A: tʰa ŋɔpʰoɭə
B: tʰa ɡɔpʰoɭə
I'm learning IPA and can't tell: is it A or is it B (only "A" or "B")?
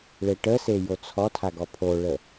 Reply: B